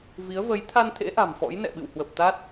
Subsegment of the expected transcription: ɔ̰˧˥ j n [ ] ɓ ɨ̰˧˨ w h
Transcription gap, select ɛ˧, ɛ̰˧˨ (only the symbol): ɛ̰˧˨